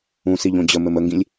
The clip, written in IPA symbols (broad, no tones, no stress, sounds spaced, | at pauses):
ũ s i ʎ õ d͡ʑ ə m ɘ m ə ŋ ɡ ĩ lʲ